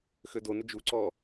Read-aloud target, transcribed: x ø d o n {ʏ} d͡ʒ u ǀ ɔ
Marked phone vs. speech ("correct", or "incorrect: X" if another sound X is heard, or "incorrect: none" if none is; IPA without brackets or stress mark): correct